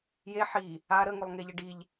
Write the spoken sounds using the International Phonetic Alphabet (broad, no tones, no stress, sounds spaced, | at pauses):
j e ħ i | a ɾ ə ŋ ɵ lˠ ŋ e ʎ ə ɖ i ʎ